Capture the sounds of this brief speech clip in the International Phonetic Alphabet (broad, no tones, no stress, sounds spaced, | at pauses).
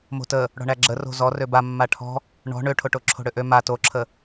m o̤ t ə | ɽ ɔ̤ ɳ æ ɡ͡ǁ ə r o̤ z ɔ r ø b a mː a ʈʰ ɔ̤ | ɳ ɔ̤ ɳ ø ʈʰ o ʈ o ǁʰ o̤ ɽ ø ʔ ø m a t o ǁʰ ə